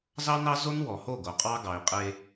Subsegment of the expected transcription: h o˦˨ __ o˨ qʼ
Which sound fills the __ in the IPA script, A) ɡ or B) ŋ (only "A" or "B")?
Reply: A